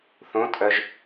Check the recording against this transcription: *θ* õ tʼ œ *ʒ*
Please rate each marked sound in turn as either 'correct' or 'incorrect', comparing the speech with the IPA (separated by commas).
correct, correct